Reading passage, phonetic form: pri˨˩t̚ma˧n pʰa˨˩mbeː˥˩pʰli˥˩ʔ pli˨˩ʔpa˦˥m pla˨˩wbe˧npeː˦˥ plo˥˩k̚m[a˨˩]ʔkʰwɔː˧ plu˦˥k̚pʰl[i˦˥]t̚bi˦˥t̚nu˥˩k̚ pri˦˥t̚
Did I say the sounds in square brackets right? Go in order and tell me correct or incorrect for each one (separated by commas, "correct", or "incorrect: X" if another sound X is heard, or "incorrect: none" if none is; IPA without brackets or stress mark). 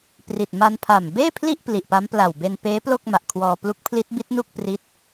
correct, correct